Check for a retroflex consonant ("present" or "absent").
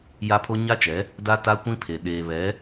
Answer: absent